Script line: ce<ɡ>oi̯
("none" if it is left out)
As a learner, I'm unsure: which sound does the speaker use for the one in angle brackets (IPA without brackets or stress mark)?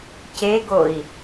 ɡ